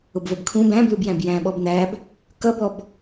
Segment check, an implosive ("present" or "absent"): present